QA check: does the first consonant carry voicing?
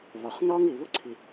yes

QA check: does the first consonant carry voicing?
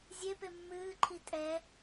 yes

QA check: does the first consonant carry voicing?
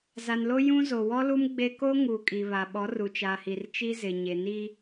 yes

